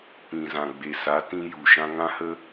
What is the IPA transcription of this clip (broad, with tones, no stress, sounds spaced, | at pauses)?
p ĩ˨ z ã˨ ɡ͡b e˨ s a˨˦ t ĩ˧ j u˨ ʃ ã˧ ŋ ã˦ h ə˦